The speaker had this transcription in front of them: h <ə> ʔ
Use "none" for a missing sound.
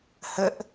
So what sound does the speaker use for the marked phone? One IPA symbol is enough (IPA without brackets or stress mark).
ə